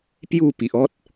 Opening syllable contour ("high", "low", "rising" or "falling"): falling